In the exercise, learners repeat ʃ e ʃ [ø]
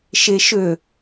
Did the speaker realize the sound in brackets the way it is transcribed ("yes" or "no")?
yes